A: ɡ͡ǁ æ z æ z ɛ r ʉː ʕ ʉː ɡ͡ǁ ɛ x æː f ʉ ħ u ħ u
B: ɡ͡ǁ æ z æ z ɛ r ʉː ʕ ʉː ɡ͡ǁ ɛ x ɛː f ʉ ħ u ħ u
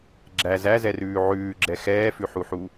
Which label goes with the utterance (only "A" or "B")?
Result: B